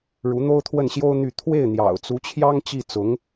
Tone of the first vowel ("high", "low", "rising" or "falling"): rising